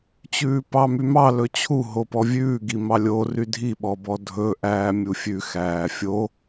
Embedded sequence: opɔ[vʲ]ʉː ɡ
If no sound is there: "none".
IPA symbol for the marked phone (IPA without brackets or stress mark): vʲ